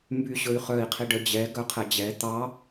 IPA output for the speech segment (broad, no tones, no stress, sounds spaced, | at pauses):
m b y ɕ ɵ y̯ χ œ i̯ qʰ i ɖ œ d͡ʑ ɛ ɡ œ qʰ ɛ d͡ʑ ɛ t̪ ɑ